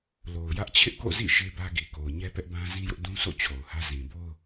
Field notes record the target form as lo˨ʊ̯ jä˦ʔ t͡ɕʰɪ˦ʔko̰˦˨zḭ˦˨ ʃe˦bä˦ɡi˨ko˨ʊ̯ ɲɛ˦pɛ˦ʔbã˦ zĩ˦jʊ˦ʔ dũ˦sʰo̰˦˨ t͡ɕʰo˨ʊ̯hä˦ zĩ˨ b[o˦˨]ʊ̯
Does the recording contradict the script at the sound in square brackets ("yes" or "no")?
yes